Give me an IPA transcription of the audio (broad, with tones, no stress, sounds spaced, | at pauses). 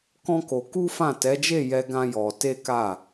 k ɔ̃˦ k o˧ k u˦ f ã˦˨ t ɛ˨˦ d͡ʒ e˦˨ j ɛ˧ ɡ ã˦ j ɔ˧ t e˦ k a˦˨